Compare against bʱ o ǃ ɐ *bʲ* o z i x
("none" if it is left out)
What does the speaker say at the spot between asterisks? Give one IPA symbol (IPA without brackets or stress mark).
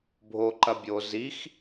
bʲ